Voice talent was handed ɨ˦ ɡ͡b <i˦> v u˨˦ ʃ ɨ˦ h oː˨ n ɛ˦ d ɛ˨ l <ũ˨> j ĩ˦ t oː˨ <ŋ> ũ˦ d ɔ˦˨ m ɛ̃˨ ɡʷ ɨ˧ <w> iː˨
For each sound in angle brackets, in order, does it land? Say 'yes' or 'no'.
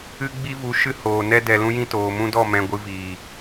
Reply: yes, no, no, no

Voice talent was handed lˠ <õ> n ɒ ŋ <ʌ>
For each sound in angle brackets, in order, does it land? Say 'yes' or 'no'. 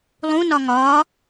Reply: no, no

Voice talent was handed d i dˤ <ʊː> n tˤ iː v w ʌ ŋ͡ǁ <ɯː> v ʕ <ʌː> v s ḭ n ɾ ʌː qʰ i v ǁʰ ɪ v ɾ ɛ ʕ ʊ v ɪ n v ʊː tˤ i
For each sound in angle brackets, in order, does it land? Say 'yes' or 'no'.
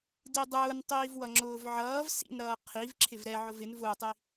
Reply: yes, no, yes

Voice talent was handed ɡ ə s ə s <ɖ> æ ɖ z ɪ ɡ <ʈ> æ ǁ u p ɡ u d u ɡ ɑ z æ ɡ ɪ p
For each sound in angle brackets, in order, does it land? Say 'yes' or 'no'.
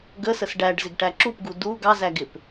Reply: yes, yes

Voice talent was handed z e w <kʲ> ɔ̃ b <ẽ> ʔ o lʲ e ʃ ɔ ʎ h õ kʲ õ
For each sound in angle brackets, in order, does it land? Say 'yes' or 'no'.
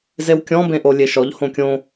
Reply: yes, yes

